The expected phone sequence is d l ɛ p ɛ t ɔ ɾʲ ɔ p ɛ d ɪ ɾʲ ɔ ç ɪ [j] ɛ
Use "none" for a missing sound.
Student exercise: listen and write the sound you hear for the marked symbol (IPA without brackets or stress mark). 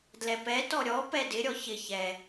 ç